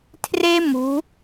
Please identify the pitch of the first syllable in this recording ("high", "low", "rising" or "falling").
high